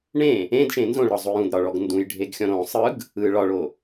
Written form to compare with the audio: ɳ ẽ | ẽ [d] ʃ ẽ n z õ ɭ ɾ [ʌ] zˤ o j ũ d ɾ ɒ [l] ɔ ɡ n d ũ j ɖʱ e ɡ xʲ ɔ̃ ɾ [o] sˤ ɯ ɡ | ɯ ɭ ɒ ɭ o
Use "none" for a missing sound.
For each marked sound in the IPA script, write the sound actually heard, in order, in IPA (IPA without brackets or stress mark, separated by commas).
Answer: d, ɒ, ɭ, õ